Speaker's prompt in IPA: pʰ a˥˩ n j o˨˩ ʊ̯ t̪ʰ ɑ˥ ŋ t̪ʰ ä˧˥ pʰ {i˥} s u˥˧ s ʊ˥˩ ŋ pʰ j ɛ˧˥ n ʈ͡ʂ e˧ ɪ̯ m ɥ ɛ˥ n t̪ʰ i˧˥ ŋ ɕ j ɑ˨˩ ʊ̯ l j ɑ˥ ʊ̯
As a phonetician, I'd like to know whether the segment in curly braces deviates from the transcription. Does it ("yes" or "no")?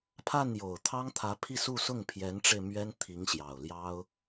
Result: yes